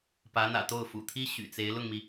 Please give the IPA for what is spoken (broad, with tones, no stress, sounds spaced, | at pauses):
p ä˧˥ n̪ ä̰˨˩ t̪ o˥˩ ʊ̯ f ṵ˨˩ t̪ʰ i˥ ɕ y̰˨˩ t͡s e˧˥ ɪ̯ l ʊ˥˩ ŋ m i˩